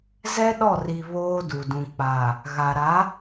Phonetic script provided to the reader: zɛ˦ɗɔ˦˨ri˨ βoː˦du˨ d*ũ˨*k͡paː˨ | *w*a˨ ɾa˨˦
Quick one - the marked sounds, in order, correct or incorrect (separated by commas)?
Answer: correct, incorrect